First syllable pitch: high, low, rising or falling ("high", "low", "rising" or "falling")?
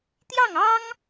falling